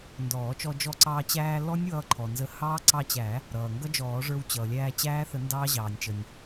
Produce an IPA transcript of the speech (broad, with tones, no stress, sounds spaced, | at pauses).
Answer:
n d ɔː˨˩˦ t͡ʃ ɔ˧ d͡ʒ ɔ˧ ǀ ɑː˧ t͡ɕ æː˧ l ɔ˦˥ nʲ w ʌː˧ ǃʰ ɔ˩ n z ə˨˥ h ɑː˦˥ ǀ ɑ˧ t͡ɕ æ˨˩˦ | ɾ ʌː˩ ŋ ɡ ʌ˦˥ d͡ʒ ɔː˨˩˦ ʐ ə˞˧ w t͡ɕ ʌː˩ lʲ æː˧ t͡ɕ æː˦˥ θ ə˨˩˦ n d ɑː˦˥ ʑ ɑː˩ nʲ t͡ʃ ə˩ nʲ